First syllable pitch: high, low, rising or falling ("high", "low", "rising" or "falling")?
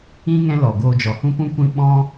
high